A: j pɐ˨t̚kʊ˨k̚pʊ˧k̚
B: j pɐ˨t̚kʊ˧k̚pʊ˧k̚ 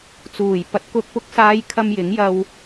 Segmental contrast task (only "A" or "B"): B